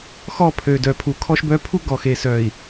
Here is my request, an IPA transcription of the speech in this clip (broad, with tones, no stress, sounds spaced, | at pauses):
x ɔ˦˨ pʰ ø˨ d œ˨ pʰ u˨ kʰ ɔ˦ ʃ b œ˦ pʰ u˦ ɡ ɔ˨ x e˨ s œ˨ i̯